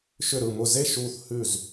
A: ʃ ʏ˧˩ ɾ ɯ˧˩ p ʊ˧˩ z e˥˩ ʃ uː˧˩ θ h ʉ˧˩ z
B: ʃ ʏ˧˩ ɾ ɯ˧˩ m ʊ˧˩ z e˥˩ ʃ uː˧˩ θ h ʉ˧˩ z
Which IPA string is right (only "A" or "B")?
B